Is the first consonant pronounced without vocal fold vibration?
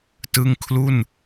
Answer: yes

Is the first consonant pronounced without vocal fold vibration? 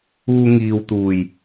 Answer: no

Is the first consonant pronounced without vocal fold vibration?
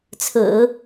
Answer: yes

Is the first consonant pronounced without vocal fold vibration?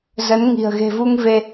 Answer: no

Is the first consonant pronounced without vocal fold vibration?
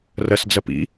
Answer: no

